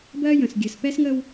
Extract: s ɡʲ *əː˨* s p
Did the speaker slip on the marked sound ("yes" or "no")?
yes